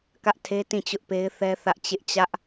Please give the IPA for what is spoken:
k ä˦ ʔ tʰ e˦ t ĩ˦˨ t͡ɕ ʊ˦ ʔ p e˦ ɪ̯ θ ɛ˦ θ ä˦ ʔ t͡ɕ ɪ˦ ʔ t͡ɕ ä˦ ʔ

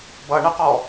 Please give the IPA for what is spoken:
b ʌ ɳ ə q ɔ

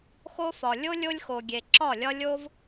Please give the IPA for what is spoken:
x o˦ f ɒ˨ lʲ o˦ lʲ o˦ lʲ x o˨ ɡʲ e˨ ǁ ɒ˦˨ lʲ ɒ˦ lʲ o˦ v

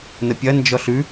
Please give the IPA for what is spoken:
n ə pʲ ɐ n d͡ʒ ɔ ɬ ʉ

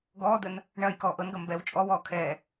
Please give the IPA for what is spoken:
ɡ ɔː d̪ ə n | ɳ ɐː j k ɔː ʔ ɤ n ɡ ɐ m b ɛ w t͡ʃʼ ɔ w ɔː kʰ ɛː

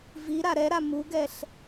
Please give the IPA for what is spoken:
v i ɾ a ɾ ɛ ɾ a m u ɡ ɛ ɬ

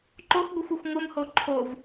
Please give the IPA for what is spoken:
ǃ o x ɡʷ ɯ xʷ o xʷ ŋʷ ɯ m h o ǃʰ o v

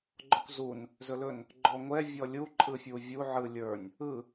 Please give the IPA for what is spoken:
ɡ͡ǃ ɔ kʷ z u n | z ɵ l ɵ n | ɡ͡ǃ ɔ ŋʷ ɛ vʲ ɔ lʲ u ǃʼ ɯ fʲ u vʲ u ʕ ɯ lʲ ə˞ nʲ | ɯ

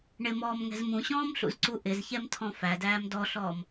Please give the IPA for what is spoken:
ɳ ɪ m ɔː m ŋ ɛ̤ z m ũ ɕ ɔ̃ː m ɬ ṵ z ǀ u ʔ ɪ z ç ɛ m tʰ ɔ̃ f æ d æː m d ɔ ɬ ɔː m

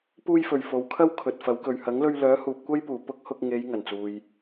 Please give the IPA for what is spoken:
p uː˧ j f ɵ˨˩ ɥ f o˨ w kʰ ɐ˥ w kʰ ɵ˨ t̚ f ɐ˨˥ w k ɵ˨ ɥ h ɐ˨˥ ŋ l ɵ˧ ɥ l œː˨˥ h uː˨ p̚ kʷ ɐ˥ j p uː˨˩ p ʊ˥ k̚ h ʊ˧ k̚ ŋ e˨˧ j ŋ ɐ˨˩ n t͡s uː˨ j

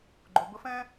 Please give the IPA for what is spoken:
ɡ͡ǃ ʊ˨ b ə˧ f ɛ̃˦

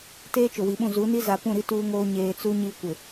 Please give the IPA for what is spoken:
t eː˦ t͡ʃ ʊ˨ w i˨ ɓ ũ˦˨ z u˨˦ n i˦ z a˨ p ũ˦˨ ɾ i˦ t uː˦ ŋ oː˦ ɲ eː˨ t͡s u˦ ɲ iː˦ kʷ ɪ˨

